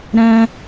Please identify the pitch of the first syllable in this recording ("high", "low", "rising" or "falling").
high